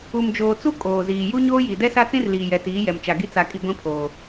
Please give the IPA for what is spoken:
u˨ m d͡ʒ oː˨ t͡s u˦ kʼ oː˨ z iː˨ j u˦ ɲ oː˦ j i˨ d ɛ˦ s a˦ t͡s ĩ˦ r l iː˨ j ɛ˨ t iː˨˦ j ɛ˨ m t͡ʃ a˨ ɡ i˦ t͡s a˨ kʼ i˨ ɡʷ ĩ˦ pʰ oː˨

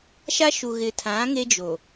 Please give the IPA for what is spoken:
ʃ a˦ ʃ u˨ ɣ ɪ˨ tʰ ã˨˦ ŋ e˦ d͡ʒ o˨

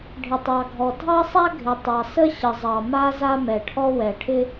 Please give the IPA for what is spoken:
ɖʱ ɪ˩ tˤ ɑ˩ ɡʱ ɔ˩ dʱ ɑ˥ sˤ a˥ ɡʱ ɪ˩ tˤ ɑ˩ s ə˥ ɕ ə˩ zˤ ɑ˩ m a˥ z a˥ m ɛ˩ ʈʰ ɔ˥ w ɛ˩ ʈʰ ɪ˥

